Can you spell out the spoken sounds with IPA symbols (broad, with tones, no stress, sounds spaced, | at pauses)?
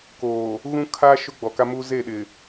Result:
k oː˨ | ɣ ũ˦ kʰ aː˦ ʃ ʊ˦ ɡ͡b ɔ˨ k a˦ m uː˦ z e˦˨ ɗ ɪ˨